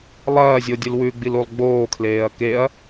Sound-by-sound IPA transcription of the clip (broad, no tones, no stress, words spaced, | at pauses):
lˠɐːzʲo dʲɨlwʉɡ͡bil ulˠɡ͡boːkʰleːɐ̯ keɐ̯